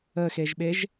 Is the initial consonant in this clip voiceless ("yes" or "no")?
yes